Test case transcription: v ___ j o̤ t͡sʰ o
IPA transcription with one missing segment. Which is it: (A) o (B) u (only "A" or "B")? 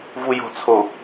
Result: B